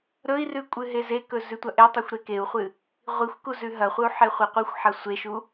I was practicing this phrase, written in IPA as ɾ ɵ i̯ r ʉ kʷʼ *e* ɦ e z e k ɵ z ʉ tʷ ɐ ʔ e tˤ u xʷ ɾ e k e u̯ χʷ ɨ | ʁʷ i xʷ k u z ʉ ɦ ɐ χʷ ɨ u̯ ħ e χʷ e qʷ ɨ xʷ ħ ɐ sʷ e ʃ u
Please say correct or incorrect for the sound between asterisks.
incorrect